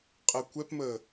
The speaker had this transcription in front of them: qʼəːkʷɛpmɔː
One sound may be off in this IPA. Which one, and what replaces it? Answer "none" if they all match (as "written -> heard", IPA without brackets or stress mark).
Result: ɔː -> əː